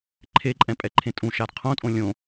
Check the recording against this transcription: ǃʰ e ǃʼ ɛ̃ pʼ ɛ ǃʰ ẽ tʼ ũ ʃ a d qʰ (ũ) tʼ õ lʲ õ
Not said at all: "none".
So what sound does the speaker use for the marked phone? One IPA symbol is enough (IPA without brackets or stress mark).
õ